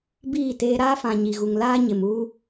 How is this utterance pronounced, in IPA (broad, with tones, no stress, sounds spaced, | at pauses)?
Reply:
b iː˦˨ t eː˦ ɾ aː˦ f ã˨ ɲ i˨ ɣ u˨ ŋ l aː˦ ɲ ɪ˨ m uː˦